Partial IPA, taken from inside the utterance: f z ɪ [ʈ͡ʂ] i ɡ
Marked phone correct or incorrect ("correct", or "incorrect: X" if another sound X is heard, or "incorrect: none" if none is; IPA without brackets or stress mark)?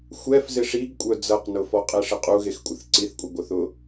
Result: incorrect: ʂ